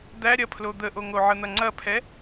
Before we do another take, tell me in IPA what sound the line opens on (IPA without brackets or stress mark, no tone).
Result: d̪